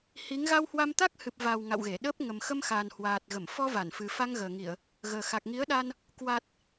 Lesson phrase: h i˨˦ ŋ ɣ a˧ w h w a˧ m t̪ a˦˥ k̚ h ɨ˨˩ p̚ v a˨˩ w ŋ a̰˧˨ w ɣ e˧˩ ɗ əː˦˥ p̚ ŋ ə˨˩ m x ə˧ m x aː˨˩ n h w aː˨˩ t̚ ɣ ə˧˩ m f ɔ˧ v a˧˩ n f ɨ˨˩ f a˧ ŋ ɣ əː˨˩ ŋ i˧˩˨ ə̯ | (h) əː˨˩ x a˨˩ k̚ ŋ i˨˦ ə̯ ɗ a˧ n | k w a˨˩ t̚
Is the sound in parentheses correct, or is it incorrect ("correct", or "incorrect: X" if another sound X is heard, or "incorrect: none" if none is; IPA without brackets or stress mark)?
incorrect: ɣ